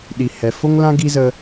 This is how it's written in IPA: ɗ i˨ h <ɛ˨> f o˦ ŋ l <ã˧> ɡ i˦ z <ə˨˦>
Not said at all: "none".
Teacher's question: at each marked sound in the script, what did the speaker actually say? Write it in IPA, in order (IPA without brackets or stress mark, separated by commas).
ɛ˨, ã˦, ə˧